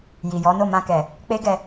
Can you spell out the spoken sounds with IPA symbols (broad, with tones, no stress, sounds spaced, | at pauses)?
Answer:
j i˨ j ɔ˨˦ n o˦˨ m ã˧ k ɛ˨ | k͡p e˦ ɡ ɛ˧